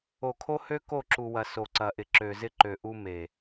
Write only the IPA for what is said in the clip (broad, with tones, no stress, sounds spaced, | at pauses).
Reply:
o˨ kʰ o˦ h ø˦ k o˦˨ ǁ u˨ w ɐ˨ s o˨ ǀ ɐ˨ ʔ ɪ˨ ǁ ø˨ z ɪ˦ ǃ ø˨ ʔ u˦ m e˨